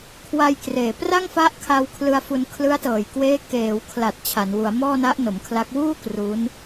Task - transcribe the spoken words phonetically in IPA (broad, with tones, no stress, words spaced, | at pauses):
kʰwa˧jkreː˨˩ pra˥˩ŋfa˦˥ʔkʰa˧w kʰlɯ˧a̯fu˧n kʰlɯ˦˥a̯tɤː˨˩jkweː˦˥ keː˩˦wkʰla˨˩t̚ t͡ɕʰa˩˦nwu˩˦a̯mɔː˥˩na˦˥ʔ no˩˦mkʰla˦˥k̚ wuː˥˩ kru˦˥n